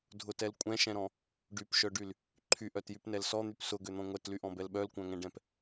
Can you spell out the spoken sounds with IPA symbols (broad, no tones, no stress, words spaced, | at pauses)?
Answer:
dʱʊtɛl kʷʼɛ̃ʃɛ̃ɾɔ̃ | ɖypʃœɖyl | ǃʰyʔœtjypnɛl sɔn̪yp sʊɡøn̪ɔ̃ ŋʷɛtlyʔɔ̃bɛl ɓœlkʷœ̃ŋɛ̃ɖɛ̃p